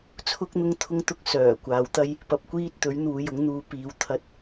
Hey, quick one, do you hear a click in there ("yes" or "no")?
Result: no